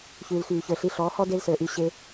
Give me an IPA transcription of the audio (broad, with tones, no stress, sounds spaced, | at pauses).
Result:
ç ʉː˨ l x yː˨ ç ə˞˨ ɬ i˧ ɬ ɔː˨˦ h ɔ˦ d e˦ l s ə˞˨ ʔ y˦˨ ɕ e˧